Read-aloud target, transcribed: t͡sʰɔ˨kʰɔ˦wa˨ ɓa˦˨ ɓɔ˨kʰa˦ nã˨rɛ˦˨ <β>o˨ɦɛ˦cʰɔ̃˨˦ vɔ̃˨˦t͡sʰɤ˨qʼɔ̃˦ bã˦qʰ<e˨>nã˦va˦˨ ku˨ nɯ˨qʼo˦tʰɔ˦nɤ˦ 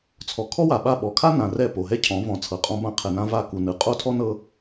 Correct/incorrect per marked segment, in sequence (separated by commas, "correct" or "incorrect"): incorrect, incorrect